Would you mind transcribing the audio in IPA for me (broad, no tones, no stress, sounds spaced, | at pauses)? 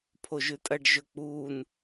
pʰ o ʒ ʉ tʼ ɐ ɖ ʒ ɵ k͡p uː n